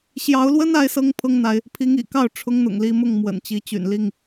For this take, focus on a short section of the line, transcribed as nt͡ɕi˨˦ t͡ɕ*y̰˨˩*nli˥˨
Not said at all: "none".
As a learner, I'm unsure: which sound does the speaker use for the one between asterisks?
y̰˨˩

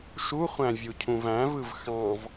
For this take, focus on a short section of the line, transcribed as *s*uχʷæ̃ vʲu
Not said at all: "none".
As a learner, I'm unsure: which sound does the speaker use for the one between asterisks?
ʃ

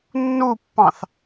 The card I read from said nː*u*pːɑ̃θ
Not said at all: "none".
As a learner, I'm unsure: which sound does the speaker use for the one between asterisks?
u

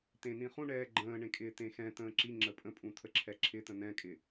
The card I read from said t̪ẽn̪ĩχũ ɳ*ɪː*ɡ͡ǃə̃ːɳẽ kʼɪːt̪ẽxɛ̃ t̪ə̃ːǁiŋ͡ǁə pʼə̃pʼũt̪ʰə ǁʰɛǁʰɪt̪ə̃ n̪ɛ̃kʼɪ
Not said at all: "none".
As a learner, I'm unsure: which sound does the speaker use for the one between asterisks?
ɛː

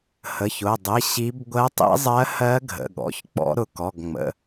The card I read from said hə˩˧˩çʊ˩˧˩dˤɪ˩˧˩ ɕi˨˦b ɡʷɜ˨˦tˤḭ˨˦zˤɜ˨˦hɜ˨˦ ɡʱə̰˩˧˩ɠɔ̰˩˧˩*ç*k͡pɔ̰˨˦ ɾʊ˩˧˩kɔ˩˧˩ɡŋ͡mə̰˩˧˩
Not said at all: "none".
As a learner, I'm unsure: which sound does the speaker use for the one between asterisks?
ç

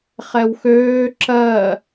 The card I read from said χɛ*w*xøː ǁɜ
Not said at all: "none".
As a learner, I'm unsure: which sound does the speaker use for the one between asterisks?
w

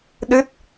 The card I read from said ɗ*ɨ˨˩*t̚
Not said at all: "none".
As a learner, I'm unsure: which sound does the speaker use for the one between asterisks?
ɨ˦˥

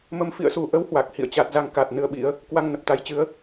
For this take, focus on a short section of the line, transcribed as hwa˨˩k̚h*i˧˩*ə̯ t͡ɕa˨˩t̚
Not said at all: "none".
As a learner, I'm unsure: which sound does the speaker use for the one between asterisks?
ḭ˧˨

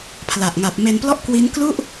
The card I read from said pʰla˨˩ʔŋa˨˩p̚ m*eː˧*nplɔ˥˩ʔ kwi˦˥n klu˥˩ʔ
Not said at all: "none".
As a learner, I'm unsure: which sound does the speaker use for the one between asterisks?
e˧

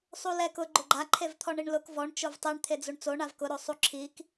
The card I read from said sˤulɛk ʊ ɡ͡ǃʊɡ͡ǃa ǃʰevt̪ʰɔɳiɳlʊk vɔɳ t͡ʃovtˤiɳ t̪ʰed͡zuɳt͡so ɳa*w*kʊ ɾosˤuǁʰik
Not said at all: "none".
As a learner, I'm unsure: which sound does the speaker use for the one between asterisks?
v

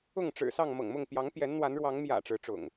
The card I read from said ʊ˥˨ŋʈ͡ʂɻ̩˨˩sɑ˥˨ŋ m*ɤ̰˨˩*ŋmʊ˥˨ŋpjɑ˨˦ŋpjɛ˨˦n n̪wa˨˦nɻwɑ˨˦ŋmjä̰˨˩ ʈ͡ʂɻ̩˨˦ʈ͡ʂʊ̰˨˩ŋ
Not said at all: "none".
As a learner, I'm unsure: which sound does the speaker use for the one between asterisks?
ɤ̰˨˩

